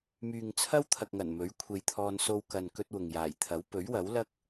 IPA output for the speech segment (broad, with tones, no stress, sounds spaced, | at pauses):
m yː˨ ŋ t͡sʰ ɐ˥ w t̪ʰ ɐ˨ k̚ ŋ ɐ˨˩ n m ɵ˨˥ ɥ kʷʰ e˧ j t̪ʰ ɔː˧ n s o˧ w k ɐ˨ n k ɵ˥ t̚ w ʊ˨ ŋ j aː˨˩ j t̪ʰ ɐ˨˥ w p ɵ˨˥ ɥ w ɐ˨˥ w l ɐ˥ k̚